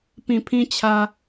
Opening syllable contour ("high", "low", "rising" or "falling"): low